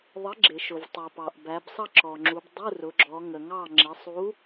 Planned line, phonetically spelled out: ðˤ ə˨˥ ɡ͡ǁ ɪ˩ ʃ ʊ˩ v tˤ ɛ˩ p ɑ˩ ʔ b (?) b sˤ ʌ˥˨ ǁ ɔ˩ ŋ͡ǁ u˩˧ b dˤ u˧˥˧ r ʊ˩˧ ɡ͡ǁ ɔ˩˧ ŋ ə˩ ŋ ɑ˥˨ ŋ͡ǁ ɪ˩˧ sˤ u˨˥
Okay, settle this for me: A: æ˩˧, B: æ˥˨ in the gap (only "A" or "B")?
A